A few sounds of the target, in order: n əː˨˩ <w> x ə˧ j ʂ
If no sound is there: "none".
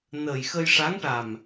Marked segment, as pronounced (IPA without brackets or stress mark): j